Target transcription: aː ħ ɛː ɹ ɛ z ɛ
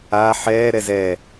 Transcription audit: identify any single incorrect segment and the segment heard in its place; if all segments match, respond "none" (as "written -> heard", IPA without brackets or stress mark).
ɹ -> ɾ